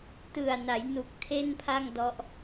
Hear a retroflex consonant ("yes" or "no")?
no